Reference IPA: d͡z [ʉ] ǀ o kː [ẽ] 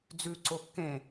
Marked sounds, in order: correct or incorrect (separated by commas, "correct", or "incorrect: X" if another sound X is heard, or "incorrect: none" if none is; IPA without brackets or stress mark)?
correct, correct